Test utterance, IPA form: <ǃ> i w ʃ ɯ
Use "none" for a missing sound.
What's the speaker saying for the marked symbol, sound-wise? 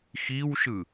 x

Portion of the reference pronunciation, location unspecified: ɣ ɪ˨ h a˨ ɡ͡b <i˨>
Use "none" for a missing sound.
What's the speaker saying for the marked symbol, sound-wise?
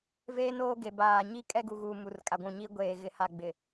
ɪ˨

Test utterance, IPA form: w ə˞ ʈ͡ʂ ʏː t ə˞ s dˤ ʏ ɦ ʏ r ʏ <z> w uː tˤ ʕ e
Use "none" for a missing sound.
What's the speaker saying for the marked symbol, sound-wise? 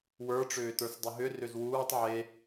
z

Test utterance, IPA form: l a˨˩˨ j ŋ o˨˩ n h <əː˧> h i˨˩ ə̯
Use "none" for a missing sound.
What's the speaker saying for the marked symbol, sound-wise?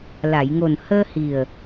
əː˧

